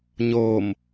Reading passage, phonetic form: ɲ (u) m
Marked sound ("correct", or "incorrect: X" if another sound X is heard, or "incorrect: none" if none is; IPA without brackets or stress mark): incorrect: o